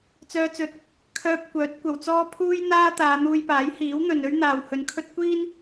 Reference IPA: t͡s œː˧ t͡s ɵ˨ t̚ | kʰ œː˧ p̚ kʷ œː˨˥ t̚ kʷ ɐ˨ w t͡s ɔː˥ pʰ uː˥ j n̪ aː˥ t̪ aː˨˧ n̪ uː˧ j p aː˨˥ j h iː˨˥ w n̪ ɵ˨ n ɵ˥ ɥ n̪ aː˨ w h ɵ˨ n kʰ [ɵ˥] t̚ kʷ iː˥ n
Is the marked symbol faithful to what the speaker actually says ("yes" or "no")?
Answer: yes